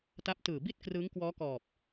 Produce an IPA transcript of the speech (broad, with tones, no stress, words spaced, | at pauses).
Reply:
ta˦˥p̚tɯː˨˩ bi˥˩t̚ krɯː˦˥ŋkwɔː˦˥kɔː˨˩p̚